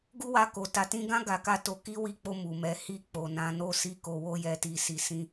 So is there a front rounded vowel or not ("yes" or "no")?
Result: no